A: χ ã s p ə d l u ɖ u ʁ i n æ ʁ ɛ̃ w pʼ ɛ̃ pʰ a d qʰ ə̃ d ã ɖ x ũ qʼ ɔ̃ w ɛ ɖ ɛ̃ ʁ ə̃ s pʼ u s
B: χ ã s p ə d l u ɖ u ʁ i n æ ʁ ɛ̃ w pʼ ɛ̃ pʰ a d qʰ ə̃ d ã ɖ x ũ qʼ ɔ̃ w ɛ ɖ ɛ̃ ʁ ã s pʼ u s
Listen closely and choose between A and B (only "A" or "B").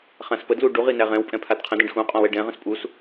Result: A